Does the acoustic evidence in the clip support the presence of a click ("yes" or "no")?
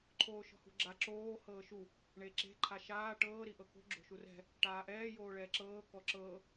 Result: yes